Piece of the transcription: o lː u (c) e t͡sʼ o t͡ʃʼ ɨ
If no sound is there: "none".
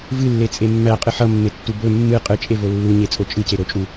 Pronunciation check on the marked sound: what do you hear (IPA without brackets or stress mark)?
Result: ɲ